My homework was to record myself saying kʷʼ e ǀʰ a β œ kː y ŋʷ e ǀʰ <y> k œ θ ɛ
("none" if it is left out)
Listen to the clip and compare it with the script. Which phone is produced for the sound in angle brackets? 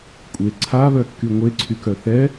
y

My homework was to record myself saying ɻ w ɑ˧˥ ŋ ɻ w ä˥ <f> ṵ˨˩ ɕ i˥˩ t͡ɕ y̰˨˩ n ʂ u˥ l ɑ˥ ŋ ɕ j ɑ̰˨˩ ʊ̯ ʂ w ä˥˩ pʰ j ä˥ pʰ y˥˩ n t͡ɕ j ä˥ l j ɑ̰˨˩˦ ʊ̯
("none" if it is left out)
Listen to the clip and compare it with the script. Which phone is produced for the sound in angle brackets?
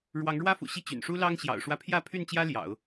f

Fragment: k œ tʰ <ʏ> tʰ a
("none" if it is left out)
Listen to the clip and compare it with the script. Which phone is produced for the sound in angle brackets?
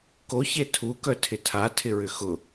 ɪ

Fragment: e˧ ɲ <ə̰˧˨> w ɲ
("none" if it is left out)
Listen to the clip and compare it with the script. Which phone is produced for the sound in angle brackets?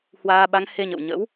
ə̰˧˨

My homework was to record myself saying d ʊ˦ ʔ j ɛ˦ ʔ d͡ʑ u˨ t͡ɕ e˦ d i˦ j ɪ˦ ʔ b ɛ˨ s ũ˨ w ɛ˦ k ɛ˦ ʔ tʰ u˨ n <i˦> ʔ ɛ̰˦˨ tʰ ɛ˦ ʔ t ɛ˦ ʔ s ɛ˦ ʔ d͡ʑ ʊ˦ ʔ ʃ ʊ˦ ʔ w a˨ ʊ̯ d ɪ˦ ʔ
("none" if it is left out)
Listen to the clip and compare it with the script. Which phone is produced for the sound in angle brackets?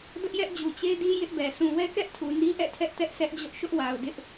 i˦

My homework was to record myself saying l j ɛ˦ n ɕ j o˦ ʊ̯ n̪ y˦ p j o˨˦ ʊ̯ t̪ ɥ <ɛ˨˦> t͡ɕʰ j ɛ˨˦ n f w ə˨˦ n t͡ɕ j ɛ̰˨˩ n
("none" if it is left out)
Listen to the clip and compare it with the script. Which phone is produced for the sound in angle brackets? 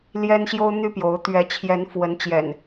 ɛ˨˦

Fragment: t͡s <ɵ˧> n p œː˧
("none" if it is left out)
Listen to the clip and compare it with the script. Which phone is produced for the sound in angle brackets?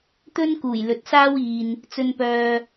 ɵ˧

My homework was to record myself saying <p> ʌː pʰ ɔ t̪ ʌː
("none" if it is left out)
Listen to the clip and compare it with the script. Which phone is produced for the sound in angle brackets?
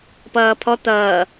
p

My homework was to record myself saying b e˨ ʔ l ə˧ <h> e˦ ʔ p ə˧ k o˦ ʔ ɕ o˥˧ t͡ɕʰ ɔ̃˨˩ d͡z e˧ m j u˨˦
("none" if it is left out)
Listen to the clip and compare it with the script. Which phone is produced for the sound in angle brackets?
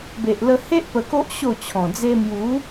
h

